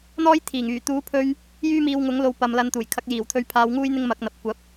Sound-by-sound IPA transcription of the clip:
n̪ ɔː˥ j t̪ʰ iː˨˩ ŋ yː˨˩ t̪ uː˨˥ pʰ ɵ˧ ɥ | j yː˥ m iː˧ w ŋ ʊ˨˥ ŋ l o˨˧ w p ɐ˨ m l ɐ˨˧ n t̪ uː˨˩ j kʰ ɐ˨˥ k̚ j iː˨˩ w t̪ʰ ɵ˧ ɥ pʰ aː˧ w ŋ uː˥ j n̪ ɪ˥ ŋ m ɐ˨˥ k̚ n̪ ɐ˨ p̚ kʷ ɐ˨˥ p̚

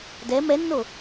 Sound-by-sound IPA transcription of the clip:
d ɛ m ɛ nː o

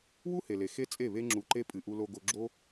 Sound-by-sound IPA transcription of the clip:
w u˦ h e˨ l e˨ x e˦ t͡sʼ e˦˨ β e˦ ŋ͡ǁ u˧ ǃ e˦ pʼ ɨ˨ ʔ u˧ l o˧ ɡ o˧ ɡ͡ǁ o˦

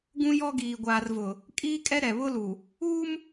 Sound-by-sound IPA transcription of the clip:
ɡ ũ˦ j ɔ˦ ɡ iː˨ ɡʷ aː˨ r v ʊ˨ | kʼ iː˦ kʼ ɛ˦ ɾ ɛ˨ β ʊ˦ l u˨ | uː˦ m

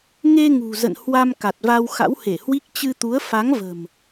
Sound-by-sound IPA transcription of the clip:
ŋ e˧ ŋ ṳ˨˩ z ə̰˧˨ n h w a˧ m k a˨˩ t̚ v a˧ w x a̰˧˥ w h e˧˩ h w i˦˥ k̚ t͡ɕ ɨ˧ t̪ u˨˦ ə̯ f a˨˦ ŋ v ə̤˨˩ m

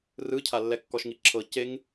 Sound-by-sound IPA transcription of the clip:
r ɯ cʰ a lː ɛ kː ɔ ʃ ŋ i ǁʰ ɤ c e ŋ

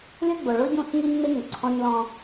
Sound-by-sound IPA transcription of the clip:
lʲ ʊ˦ ɡ͡b ʊ˨ ɭ ʊ˦ ɟ ũ˦˨ s ŋ i˦ ɲ ŋ͡m ɪ˦ ŋ ʊ˨ ǀʰ ɔ̃˦ ɲ l ɔ̃˦

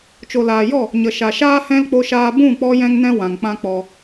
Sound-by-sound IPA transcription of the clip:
t͡ʃ o˨ l aː˨ j ɔ˦˨ | ɲ ə˨ ʃ a˨ ʃ aː˦ h ɛ̃˦ l k͡p o˧ ʃ aː˧ b ũ˦˨ k͡p ɔ˧ j ɛ̃˦ ŋ n ɛ̃˦ w ã˨ ŋ k͡p ã˦ k͡p ɔ˧

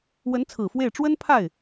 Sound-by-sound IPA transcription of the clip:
w ə˧˥ n t͡sʰ ɹ̩˨˩ f w e˥˩ ɪ̯ ʈ͡ʂ w ə˥ n pʰ a˥˩ ɪ̯

